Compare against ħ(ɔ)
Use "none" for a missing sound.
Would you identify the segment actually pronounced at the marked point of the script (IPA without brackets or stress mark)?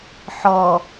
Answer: ɔ